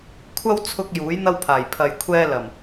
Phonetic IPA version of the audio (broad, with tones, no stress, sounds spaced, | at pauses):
kʷʰ ɐ˥ w t͡sʰ ʊ˧ k̚ j uː˨˥ j n̪ ɐ˥ w pʰ aː˨˩ j pʰ ɐ˨ j kʷʰ ɛː˧ l ɐ˨˩ m